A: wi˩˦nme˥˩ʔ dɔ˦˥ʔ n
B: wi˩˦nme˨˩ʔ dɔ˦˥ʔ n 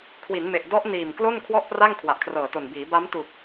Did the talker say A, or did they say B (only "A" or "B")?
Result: B